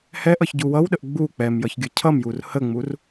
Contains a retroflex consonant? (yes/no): no